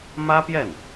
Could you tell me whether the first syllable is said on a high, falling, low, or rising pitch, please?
high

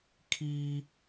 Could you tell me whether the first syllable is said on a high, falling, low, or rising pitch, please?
high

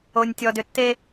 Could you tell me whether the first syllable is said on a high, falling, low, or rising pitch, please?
low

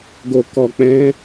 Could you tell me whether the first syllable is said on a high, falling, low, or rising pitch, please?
low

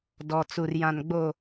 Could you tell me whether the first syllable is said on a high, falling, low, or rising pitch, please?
low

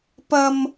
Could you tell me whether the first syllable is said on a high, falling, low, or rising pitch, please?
high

